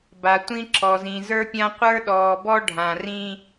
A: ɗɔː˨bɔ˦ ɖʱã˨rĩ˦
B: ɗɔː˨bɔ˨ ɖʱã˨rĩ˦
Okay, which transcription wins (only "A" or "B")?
A